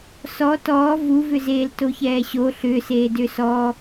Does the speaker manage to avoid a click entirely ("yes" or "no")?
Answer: yes